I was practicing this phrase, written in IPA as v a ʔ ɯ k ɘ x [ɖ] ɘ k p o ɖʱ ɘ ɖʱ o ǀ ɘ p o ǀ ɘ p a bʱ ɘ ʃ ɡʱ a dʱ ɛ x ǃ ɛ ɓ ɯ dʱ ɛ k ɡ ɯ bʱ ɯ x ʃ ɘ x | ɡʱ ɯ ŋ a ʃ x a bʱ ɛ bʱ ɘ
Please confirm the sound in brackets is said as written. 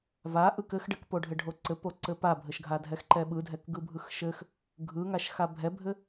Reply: yes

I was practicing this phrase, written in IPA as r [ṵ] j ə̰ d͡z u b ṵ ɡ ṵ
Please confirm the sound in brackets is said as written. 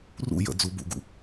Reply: yes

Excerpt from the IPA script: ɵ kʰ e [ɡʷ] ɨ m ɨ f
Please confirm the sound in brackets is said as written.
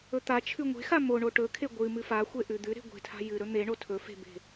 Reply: yes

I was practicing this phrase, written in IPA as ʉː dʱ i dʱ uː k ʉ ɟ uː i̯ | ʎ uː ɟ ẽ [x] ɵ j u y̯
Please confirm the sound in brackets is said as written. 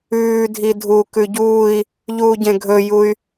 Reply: no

